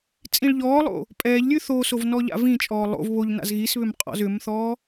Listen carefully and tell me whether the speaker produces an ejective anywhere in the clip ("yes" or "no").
yes